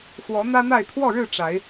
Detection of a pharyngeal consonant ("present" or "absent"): absent